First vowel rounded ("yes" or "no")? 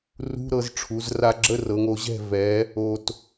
yes